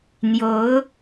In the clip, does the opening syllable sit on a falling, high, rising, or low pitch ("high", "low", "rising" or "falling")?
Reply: rising